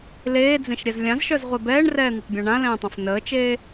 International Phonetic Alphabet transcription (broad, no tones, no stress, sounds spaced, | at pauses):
l eː d͡z ẽ ʃ ɾʲ ɛ z lʲ ã z ʃ œ z ʁʷ e b ɛː ɳ r ɛː n̪ ə tˤ bʲ ã ɳ ã l ɛ̃ː tˤ ã f n əː t͡ʃ eː